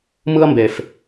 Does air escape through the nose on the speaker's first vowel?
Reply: no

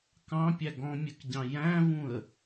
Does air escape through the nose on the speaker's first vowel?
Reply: yes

